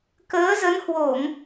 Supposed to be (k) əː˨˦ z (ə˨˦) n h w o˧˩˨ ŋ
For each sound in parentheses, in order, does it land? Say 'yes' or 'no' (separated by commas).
yes, yes